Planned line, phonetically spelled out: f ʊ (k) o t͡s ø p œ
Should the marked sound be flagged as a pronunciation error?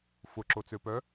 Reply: yes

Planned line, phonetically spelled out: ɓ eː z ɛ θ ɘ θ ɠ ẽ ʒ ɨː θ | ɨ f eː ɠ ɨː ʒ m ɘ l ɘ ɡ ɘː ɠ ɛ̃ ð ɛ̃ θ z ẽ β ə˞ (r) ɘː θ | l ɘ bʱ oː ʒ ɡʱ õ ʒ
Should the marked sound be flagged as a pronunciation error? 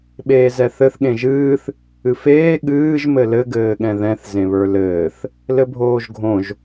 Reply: yes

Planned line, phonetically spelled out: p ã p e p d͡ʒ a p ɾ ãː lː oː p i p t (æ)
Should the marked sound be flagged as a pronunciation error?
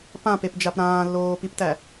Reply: no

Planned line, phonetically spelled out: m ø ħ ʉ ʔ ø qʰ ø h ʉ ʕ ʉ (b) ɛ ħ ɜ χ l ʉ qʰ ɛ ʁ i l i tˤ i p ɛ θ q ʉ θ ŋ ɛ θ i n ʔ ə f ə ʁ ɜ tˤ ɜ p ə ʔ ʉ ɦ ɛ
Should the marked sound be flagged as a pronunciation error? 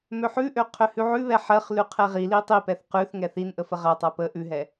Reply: yes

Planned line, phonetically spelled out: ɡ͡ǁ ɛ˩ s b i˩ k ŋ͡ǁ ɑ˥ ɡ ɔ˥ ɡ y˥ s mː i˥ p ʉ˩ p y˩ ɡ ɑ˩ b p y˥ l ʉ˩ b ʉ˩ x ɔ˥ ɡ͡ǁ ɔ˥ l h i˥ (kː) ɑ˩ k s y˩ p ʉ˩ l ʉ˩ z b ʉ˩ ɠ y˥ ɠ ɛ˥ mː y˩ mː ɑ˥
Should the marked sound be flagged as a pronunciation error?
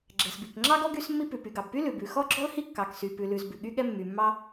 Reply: no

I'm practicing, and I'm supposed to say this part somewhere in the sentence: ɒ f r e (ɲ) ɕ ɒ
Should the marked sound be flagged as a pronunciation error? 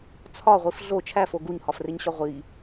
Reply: no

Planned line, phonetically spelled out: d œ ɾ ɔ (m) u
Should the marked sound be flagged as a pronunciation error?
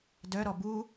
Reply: yes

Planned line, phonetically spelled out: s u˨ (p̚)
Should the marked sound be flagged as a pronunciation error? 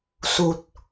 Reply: yes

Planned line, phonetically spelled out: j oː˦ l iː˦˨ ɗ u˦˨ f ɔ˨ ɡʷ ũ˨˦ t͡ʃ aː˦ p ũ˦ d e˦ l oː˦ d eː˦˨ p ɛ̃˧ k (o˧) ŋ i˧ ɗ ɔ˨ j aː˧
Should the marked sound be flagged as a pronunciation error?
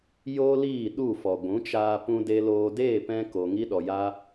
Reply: yes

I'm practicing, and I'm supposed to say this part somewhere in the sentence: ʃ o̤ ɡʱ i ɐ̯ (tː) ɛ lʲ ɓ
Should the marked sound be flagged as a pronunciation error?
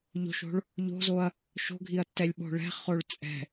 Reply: no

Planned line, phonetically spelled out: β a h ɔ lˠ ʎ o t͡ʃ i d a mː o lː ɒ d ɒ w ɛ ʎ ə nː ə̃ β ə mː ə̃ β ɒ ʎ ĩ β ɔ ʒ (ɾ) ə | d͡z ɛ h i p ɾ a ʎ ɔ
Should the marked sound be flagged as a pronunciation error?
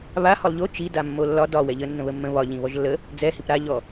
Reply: yes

